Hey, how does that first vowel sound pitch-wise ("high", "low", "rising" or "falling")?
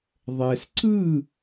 low